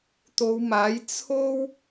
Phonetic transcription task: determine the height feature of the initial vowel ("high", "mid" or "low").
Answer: mid